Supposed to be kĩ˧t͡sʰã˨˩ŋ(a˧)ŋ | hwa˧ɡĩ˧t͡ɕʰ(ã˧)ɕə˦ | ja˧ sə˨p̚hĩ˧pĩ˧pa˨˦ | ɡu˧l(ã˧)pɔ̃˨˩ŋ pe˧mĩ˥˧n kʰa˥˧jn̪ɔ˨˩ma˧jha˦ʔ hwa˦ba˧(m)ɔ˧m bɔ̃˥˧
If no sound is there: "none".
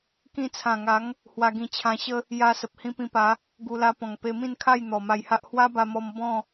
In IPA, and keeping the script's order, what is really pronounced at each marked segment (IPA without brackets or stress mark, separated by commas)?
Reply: a˨˦, ã˧, a˧, m